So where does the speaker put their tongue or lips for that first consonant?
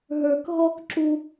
throat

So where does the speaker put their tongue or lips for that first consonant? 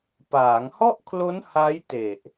lips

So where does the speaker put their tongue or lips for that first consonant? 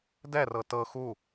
tongue tip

